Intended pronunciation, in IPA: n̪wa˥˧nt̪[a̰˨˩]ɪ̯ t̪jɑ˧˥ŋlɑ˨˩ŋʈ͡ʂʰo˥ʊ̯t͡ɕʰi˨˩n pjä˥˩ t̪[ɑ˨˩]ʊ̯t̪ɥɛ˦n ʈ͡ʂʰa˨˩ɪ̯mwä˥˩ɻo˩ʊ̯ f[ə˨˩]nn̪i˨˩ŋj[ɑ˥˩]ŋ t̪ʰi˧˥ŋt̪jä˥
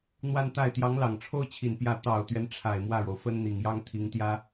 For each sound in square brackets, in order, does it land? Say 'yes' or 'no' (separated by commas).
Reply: no, yes, no, no